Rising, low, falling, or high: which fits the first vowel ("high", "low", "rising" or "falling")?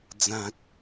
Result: low